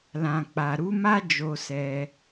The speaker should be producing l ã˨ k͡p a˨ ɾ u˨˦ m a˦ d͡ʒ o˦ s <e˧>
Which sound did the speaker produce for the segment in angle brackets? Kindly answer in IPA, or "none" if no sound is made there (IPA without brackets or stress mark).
ɛ˧